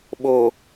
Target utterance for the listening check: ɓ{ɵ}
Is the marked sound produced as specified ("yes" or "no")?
no